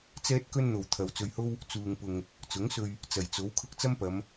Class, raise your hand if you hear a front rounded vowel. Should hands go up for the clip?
no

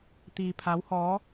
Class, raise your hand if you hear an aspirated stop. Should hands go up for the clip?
yes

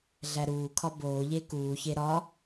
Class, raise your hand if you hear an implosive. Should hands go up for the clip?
no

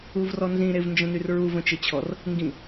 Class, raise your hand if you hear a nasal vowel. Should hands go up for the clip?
yes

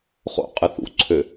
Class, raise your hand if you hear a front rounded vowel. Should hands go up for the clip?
yes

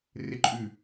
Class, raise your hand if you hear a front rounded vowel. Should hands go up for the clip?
yes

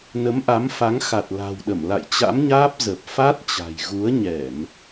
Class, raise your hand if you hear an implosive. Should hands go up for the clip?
yes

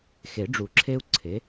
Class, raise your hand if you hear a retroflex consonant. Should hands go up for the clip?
yes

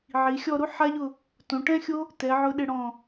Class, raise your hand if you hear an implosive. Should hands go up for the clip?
yes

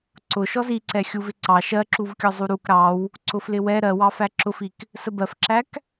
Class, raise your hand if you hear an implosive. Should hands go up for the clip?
no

